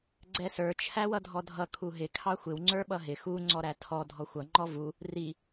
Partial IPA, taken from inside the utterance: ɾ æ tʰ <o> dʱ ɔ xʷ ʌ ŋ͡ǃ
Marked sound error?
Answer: yes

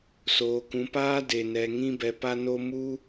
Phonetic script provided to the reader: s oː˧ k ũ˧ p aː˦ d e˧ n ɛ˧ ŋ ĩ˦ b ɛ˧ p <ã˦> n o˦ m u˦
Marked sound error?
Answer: yes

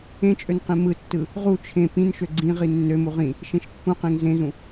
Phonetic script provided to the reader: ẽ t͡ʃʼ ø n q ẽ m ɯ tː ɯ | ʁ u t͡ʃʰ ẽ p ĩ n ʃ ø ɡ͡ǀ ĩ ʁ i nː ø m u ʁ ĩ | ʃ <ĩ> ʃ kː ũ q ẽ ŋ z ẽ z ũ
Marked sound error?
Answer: yes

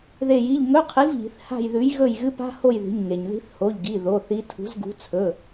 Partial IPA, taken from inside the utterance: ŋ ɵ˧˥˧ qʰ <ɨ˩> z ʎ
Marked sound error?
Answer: yes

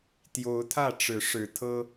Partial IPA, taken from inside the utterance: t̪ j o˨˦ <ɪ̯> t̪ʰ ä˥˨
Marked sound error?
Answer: yes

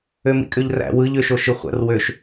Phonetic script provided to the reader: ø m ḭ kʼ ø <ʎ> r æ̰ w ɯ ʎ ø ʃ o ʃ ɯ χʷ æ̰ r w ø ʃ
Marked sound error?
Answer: no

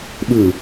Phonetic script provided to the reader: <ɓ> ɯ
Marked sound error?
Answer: no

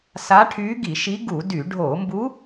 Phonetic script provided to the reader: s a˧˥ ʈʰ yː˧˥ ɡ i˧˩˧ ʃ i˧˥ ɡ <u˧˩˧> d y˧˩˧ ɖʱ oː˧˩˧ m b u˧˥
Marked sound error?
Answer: no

